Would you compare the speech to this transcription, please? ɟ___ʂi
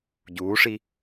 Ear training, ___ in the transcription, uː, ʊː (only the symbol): uː